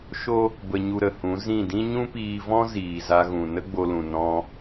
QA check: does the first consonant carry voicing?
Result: no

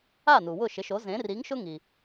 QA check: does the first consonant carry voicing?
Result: yes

